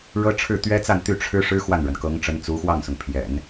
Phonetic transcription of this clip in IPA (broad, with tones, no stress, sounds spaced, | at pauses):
ɻ ɤ˥ ʈ͡ʂʰ ɻ̩˥˩ t̪ ɥ ɛ˥ t͡s a˥˧ n t̪ y˥˩ ʈ͡ʂʰ ɻ̩˥ ʂ ɻ̩˥ x w a˥˩ n ɻ ə˩ n k ɤ˧˥ ŋ ʈ͡ʂ ə˧˥ n t͡s u˧˥ x w ɑ˥˩ ŋ s ʊ˩ ŋ pʰ j ɛ̰˨˩˦ n